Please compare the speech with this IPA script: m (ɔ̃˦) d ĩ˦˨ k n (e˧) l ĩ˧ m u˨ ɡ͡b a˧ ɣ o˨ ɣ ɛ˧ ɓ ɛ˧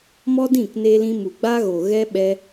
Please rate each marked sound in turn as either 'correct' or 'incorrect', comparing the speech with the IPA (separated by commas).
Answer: incorrect, correct